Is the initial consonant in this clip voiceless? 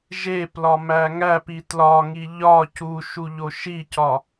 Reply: no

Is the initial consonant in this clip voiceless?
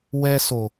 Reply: no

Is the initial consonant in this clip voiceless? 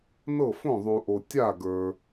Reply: no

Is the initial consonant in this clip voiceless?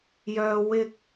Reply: no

